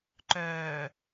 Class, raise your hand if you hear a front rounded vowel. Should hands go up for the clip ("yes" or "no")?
yes